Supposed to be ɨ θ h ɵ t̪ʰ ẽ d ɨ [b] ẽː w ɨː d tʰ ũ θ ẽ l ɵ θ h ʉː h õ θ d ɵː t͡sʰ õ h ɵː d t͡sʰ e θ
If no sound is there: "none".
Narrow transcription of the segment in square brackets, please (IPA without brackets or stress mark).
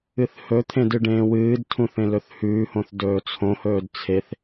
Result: ɖ